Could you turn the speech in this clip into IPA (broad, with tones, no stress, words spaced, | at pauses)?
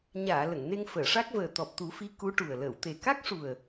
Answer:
ɲaː˨˩˨ lə˨˩˨ŋne˧ŋfəː˨˩˨ʂa˦˥k̚ vəː˨˩ t̪ɔ˨˩p̚t̪u˨˩˦fi˧˥ ku˧˥ʈu˨˩ə̯ ləː˨˩˨wt̪e˨˩ ka˦˥k̚ʂu˨˩ə̯